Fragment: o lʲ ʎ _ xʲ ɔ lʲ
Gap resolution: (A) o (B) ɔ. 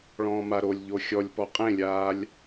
A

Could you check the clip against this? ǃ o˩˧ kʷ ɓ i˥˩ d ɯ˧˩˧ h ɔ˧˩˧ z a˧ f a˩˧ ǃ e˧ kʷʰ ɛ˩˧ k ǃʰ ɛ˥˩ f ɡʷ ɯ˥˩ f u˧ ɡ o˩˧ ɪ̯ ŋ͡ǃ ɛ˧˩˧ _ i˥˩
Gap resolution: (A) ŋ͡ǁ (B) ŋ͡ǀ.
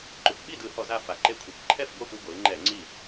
B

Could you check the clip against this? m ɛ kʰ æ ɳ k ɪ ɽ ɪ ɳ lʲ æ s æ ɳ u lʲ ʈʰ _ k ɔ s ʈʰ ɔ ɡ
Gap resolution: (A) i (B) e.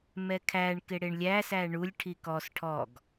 A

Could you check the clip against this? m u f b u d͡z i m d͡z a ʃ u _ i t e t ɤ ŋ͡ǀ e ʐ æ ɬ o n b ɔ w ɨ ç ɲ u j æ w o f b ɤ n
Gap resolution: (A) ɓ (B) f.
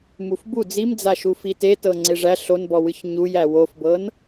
B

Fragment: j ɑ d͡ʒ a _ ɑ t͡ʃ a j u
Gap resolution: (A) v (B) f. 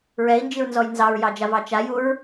A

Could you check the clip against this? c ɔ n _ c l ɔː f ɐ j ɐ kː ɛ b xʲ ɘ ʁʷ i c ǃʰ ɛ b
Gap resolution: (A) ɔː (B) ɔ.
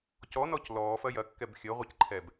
B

